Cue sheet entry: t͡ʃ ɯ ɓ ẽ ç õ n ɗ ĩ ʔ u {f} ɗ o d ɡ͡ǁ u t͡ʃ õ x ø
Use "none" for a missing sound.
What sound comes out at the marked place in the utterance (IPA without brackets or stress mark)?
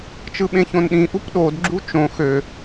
p